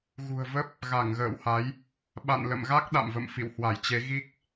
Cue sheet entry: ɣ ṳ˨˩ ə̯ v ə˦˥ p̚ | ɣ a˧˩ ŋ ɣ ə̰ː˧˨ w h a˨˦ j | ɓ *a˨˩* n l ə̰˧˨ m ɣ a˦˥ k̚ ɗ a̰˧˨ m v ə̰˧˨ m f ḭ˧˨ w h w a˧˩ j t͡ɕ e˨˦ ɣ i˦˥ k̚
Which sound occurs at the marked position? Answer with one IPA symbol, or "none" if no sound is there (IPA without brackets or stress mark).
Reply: a̰˧˨